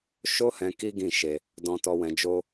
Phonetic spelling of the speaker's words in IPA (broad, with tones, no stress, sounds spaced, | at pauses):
ʃ o˦ h ɛ̃˧ k i˦ ɡ ĩ˦˨ ʃ e˧ | d ɔ̃˧ t ɔ˧ w ɛ̃˧ d͡ʒ o˦